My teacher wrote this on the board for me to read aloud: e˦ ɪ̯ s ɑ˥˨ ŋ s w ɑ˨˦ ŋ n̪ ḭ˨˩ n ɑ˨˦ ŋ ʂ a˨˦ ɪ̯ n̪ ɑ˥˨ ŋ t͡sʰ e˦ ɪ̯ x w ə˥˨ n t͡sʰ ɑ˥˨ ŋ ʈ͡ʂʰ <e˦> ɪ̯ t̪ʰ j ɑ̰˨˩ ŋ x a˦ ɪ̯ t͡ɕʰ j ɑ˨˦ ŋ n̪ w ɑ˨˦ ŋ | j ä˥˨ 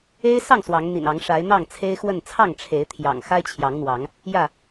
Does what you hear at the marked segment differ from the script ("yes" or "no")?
yes